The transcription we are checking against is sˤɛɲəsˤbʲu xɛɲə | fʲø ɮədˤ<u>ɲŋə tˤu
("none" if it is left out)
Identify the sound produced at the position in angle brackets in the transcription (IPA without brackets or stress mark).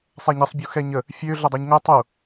u